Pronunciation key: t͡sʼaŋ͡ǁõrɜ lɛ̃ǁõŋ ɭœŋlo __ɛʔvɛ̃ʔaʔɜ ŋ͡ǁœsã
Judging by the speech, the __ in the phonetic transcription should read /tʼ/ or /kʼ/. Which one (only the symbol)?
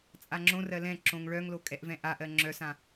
kʼ